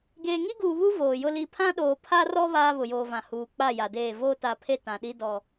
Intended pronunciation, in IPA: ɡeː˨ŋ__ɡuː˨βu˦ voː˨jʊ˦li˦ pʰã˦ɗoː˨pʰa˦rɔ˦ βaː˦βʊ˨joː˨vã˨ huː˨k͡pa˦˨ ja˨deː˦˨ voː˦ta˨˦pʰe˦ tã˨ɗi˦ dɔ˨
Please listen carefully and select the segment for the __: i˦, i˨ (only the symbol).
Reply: i˦